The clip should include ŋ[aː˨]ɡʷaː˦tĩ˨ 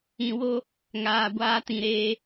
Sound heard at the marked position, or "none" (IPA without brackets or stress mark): aː˨